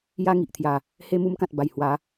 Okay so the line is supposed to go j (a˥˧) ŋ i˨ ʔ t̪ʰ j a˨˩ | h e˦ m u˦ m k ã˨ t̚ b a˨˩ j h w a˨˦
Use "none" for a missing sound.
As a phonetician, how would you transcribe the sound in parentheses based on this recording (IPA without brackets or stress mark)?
a˦